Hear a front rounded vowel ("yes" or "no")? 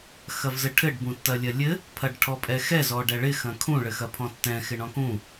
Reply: no